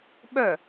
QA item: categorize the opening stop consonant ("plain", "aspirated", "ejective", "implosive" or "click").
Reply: implosive